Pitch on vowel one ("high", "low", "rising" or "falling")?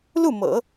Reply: falling